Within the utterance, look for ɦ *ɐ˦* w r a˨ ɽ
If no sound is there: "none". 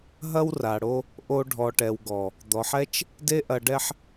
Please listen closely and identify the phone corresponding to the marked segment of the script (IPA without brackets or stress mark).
ɐ˦